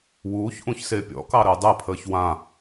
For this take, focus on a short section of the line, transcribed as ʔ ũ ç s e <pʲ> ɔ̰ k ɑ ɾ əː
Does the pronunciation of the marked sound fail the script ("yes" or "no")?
no